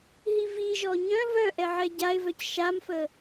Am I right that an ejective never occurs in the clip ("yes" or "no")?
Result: yes